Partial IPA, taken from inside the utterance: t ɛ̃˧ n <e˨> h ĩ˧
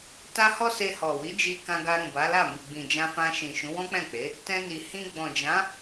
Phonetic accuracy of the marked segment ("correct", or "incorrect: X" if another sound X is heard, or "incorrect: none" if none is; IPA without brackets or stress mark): incorrect: i˨